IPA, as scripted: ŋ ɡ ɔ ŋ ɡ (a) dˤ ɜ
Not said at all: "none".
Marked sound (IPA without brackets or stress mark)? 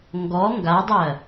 a